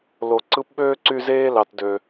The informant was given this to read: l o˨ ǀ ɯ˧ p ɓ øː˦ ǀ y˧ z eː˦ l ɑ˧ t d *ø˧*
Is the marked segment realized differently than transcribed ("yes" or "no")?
no